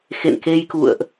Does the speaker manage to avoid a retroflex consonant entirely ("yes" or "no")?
yes